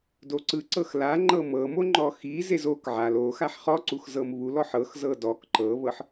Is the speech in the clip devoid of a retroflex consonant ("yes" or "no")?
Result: yes